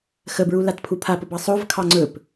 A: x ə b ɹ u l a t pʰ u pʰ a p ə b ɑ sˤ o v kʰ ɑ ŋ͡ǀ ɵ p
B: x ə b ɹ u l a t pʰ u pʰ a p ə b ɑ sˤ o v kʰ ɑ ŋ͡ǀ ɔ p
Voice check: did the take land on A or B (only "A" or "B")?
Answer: A